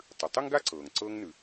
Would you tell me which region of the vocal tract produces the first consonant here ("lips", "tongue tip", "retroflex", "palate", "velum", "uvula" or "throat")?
tongue tip